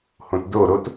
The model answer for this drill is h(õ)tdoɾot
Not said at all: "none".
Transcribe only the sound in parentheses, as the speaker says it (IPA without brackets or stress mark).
õ